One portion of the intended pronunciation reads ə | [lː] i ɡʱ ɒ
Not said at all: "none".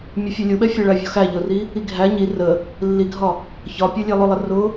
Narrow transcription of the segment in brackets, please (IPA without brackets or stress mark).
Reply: lː